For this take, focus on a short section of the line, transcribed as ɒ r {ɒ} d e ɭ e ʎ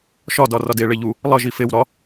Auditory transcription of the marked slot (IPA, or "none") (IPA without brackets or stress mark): ɒ